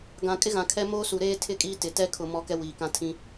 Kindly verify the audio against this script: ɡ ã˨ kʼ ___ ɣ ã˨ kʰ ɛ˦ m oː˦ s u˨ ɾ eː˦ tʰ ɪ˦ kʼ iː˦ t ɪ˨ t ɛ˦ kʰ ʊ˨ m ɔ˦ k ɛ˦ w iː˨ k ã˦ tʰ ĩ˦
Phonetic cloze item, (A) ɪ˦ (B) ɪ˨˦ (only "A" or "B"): A